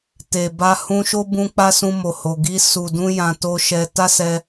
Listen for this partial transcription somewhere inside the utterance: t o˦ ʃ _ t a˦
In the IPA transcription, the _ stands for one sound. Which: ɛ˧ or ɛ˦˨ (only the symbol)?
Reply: ɛ˧